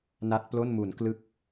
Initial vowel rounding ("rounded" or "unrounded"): unrounded